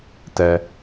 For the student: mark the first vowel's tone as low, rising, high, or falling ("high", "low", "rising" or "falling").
low